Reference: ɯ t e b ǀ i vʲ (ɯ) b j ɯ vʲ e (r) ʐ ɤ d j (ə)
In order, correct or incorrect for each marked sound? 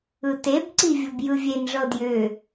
incorrect: ɤ, incorrect: n, incorrect: ʏ

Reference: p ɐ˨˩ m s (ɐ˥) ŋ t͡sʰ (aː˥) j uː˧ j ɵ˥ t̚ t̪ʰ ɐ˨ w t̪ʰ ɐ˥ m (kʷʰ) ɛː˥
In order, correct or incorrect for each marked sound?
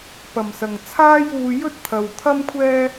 incorrect: ɐ˨˩, correct, correct

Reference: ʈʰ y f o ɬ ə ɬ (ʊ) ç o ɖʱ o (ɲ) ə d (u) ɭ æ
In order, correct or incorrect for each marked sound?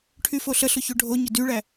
correct, correct, incorrect: y

